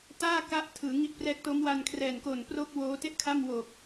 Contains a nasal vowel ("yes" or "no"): no